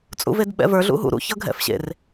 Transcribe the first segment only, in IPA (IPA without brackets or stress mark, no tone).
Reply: t͡sʼ